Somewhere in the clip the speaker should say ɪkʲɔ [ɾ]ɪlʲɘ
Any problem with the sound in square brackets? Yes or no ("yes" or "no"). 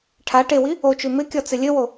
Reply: yes